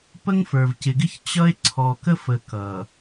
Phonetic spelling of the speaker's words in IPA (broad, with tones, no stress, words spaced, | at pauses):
pə˦ŋfə˞˨vcɪ˨ɡɪ˦ç t͡ɕʌ˦e̯ ǀʰɔ˨kə˦fə˨ kʌ˨